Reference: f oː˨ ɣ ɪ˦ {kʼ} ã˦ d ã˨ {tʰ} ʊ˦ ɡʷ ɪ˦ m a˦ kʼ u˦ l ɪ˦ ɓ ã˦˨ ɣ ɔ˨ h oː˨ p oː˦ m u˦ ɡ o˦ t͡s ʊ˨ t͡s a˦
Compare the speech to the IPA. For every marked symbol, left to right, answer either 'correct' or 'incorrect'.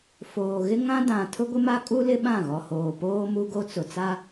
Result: incorrect: ŋ, correct

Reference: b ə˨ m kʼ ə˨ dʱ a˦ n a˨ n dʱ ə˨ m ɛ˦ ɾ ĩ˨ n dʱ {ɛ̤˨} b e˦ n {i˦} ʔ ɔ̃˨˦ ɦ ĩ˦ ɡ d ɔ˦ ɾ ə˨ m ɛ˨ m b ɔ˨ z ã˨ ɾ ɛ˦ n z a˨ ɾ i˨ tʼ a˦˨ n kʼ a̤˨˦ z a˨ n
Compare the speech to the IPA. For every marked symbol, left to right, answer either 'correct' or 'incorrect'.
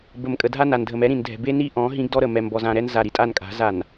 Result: correct, correct

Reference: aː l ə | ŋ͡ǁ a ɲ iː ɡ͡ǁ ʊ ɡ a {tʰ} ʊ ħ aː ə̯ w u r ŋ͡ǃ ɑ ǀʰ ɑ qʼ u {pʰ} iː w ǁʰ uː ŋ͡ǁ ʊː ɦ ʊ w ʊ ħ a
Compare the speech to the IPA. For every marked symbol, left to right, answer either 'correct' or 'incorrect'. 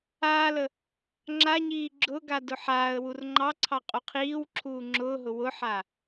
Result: incorrect: d, incorrect: qʰ

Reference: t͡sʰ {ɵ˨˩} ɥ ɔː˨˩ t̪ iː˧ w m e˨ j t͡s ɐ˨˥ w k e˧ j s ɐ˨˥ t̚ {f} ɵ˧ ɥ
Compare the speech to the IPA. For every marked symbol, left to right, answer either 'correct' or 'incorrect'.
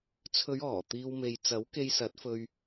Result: incorrect: ɵ˨˧, correct

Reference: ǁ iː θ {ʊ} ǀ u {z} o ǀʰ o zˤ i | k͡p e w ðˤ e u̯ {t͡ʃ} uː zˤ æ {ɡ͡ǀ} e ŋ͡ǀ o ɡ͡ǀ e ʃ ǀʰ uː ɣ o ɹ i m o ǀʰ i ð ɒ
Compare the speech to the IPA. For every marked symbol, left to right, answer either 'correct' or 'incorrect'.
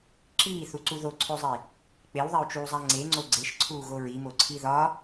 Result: incorrect: u, incorrect: ð, correct, incorrect: ŋ͡ǀ

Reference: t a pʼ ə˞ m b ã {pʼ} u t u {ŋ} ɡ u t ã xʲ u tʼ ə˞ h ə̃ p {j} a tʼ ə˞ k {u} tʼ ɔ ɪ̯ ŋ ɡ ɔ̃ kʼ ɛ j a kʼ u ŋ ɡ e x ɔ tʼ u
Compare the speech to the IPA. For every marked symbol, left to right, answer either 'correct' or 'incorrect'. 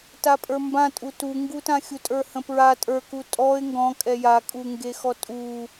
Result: incorrect: tʼ, correct, incorrect: ɹ, correct

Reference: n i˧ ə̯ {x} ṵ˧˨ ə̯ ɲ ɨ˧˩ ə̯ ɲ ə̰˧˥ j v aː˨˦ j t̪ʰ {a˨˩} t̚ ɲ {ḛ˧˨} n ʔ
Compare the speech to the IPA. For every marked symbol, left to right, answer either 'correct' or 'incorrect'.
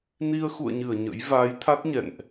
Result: correct, incorrect: a˦˥, incorrect: ɛ̰˧˨

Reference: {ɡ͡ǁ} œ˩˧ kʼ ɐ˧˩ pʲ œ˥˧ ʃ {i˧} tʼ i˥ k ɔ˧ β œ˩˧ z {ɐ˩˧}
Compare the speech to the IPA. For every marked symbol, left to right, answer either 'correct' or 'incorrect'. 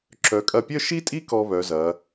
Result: incorrect: ǁ, incorrect: i˥, correct

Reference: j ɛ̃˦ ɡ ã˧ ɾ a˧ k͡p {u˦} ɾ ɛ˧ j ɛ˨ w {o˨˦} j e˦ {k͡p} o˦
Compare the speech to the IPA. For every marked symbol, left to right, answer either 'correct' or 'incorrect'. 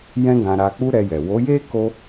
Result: correct, correct, incorrect: k

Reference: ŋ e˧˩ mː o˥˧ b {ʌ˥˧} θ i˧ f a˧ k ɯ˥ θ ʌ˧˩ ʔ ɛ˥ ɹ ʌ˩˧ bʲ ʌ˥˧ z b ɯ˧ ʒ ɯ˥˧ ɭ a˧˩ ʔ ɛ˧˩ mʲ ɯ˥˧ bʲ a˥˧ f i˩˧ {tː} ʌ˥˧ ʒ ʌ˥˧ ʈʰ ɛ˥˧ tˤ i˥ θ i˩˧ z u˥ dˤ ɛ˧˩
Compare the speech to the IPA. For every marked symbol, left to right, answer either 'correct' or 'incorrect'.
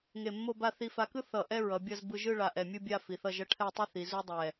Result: incorrect: a˥˧, incorrect: θ

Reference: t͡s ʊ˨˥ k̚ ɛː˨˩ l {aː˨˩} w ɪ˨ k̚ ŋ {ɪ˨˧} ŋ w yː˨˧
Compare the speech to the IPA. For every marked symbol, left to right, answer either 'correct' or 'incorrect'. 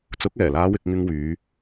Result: incorrect: aː˨˧, incorrect: ɪ˧

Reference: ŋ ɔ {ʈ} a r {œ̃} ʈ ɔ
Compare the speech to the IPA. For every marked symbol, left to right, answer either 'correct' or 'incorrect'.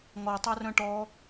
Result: incorrect: tˤ, correct

